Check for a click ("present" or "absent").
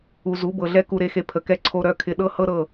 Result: present